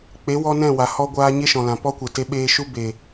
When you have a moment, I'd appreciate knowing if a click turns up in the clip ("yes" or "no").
no